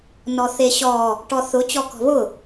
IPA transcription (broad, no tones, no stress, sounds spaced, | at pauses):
n ɔ θ e ɕ ɔ | ʈ ɔ θ ʊ t͡ɕ ɔ k ɔ̤ β ʊ